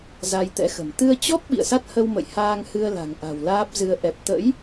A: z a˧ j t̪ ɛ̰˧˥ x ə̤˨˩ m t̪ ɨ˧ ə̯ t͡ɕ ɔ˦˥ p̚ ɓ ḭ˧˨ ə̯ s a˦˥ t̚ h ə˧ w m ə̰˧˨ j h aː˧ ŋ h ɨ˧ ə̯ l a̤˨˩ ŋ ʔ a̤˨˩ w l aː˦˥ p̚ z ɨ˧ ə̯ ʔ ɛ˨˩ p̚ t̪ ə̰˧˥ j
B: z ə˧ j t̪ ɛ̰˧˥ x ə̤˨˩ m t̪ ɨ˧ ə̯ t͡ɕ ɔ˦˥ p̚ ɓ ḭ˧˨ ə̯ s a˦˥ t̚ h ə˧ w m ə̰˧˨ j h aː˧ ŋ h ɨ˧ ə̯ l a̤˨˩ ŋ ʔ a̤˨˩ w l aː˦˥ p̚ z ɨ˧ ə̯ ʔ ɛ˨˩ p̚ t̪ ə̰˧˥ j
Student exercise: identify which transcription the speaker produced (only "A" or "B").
A